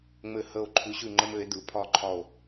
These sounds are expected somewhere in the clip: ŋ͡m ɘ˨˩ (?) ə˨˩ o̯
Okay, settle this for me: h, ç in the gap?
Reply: h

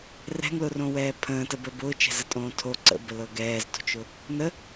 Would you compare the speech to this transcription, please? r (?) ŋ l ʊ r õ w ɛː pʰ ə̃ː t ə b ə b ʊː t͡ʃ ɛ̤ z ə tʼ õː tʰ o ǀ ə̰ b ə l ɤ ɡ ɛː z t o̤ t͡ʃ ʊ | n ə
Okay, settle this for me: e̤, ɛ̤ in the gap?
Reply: ɛ̤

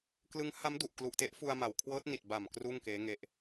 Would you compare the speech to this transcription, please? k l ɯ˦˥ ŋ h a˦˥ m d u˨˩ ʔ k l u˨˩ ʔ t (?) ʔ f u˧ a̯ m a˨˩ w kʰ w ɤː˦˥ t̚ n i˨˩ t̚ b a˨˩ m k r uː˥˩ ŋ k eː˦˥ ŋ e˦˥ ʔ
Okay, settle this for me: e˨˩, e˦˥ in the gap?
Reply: e˦˥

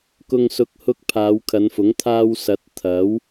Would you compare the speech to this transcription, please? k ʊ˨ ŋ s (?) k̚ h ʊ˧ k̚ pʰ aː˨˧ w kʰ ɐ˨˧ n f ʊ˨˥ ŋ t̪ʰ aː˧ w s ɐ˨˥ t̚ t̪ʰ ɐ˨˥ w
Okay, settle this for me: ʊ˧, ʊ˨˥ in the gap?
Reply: ʊ˨˥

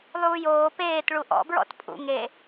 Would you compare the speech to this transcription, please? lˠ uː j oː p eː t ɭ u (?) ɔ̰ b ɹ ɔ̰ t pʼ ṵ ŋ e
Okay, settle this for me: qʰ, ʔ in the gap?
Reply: ʔ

